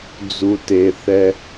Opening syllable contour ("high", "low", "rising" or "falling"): low